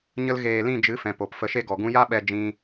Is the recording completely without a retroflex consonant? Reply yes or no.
yes